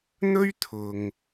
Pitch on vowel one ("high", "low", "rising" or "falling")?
high